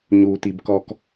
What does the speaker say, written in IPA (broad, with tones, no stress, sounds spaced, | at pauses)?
ɲ uː˨ t i˨ b k ɔ˦ k